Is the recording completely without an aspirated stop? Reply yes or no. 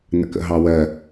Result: yes